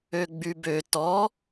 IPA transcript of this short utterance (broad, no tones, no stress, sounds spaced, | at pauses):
ø ɡ͡b y b ø t ɔ